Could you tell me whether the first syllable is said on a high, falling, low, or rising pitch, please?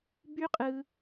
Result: high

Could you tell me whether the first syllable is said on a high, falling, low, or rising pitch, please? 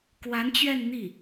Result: rising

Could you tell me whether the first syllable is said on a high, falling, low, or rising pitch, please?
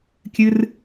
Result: high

